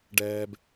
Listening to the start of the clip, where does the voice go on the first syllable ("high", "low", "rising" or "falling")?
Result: high